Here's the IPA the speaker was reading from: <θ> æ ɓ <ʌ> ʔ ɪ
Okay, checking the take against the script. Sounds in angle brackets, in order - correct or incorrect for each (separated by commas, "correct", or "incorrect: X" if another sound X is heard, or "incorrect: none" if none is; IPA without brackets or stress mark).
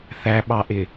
correct, incorrect: ɑ